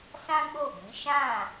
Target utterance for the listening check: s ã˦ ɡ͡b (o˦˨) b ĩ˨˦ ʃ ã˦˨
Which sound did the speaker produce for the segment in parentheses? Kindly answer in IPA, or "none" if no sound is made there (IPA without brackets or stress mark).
o˦˨